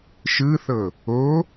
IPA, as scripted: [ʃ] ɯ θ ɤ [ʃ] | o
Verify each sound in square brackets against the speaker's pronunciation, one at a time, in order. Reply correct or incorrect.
correct, incorrect: none

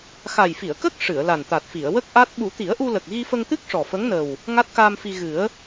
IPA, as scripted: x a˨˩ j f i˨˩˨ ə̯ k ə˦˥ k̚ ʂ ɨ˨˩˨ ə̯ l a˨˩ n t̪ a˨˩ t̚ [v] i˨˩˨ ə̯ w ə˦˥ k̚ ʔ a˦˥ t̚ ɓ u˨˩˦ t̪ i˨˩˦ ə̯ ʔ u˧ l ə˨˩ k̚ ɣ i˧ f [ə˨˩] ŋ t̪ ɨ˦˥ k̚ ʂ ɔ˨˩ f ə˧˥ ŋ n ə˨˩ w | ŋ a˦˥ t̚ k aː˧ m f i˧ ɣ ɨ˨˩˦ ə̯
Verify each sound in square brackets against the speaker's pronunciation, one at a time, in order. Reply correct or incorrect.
incorrect: f, incorrect: ə˧

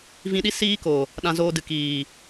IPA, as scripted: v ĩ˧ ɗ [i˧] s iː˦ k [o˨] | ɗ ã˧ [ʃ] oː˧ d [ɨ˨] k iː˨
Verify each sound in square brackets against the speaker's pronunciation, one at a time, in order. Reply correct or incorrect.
incorrect: i˦, correct, incorrect: z, correct

